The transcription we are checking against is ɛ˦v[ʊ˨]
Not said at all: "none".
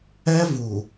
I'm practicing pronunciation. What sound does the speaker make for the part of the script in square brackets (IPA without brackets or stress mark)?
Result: u˨